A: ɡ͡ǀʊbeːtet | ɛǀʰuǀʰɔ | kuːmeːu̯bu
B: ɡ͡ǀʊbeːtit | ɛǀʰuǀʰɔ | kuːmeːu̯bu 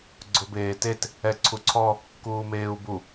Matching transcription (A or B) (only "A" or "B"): A